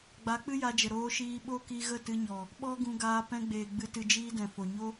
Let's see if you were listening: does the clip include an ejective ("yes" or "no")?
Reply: no